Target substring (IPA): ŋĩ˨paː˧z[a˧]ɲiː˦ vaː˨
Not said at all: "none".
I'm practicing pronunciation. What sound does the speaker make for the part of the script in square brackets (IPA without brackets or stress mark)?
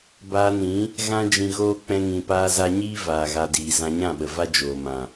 a˧